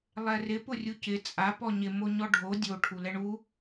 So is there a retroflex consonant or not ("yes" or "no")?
yes